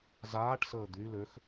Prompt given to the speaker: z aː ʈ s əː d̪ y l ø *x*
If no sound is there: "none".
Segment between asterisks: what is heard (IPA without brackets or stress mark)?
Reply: x